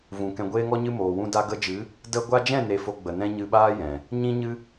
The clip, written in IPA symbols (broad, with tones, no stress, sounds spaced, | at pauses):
v ũ˨ k ɛ̃˨ ɡʷ eː˧ ŋ ɔ˧ ɲ ɨ˧ m oː˨ w ũ˧ d a˧ ɡ ə˧ d͡ʒ ɨ˨˦ | d ə˦ ɡʷ a˧ d͡ʒ ɛ̃˦˨ n e˧ f o˧ ɡ͡b ə˨ n ɛ̃˦ ɲ ɨ˧ ɓ aː˦ j ɛ̃˨ | ɲ ĩ˦ ɲ ɨ˦